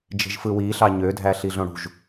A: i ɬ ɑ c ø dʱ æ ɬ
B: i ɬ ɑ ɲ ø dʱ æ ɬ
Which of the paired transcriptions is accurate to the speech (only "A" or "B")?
B